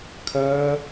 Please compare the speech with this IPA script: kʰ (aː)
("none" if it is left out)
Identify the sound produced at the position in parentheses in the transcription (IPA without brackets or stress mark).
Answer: ɐː